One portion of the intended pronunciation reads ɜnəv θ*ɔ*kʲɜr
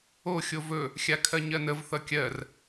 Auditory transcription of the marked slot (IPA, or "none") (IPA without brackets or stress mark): ʌ